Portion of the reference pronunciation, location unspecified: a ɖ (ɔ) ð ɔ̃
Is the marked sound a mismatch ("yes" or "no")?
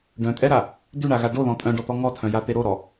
yes